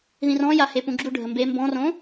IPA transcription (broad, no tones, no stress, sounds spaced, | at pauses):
ð ĩ r ɔ̃ j a h e p ũ ɡ͡ǁ u ɖʱ ə m b e m b ɔ̃ r õ